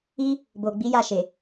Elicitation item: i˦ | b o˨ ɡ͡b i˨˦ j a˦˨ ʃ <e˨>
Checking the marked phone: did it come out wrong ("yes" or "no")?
no